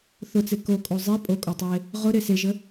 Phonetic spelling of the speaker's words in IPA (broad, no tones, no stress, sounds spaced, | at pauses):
θ ʊ t͡s e k o kʼ o zˤ i pʼ o kʼ o tˤ e | ʁ ʊ ɾ e s e ʒ ə